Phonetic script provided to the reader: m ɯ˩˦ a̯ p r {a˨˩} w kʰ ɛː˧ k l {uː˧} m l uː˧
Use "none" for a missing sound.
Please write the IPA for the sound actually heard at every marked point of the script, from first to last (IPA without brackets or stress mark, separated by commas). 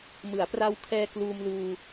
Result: a˧, uː˧